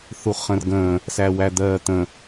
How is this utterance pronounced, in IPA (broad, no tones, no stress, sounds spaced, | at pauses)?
θ u χ ə̃ r ɡ ə̃ː | s æ w æ d̪ ɜː t̪ ə̃